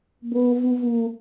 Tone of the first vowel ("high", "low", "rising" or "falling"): high